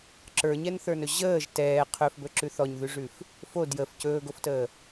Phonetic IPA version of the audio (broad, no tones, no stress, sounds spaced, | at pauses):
ǁ ə˞ ɲ ɛ n θ ə˞ n ɵ ʑ əː ʒ t ɛː qʰ ɵ f b ɵ ǁ ʉ θ ɔ ɲ ð ʉ ʐ ʉ f | f o d j ə f c ɵː ɡ o f t əː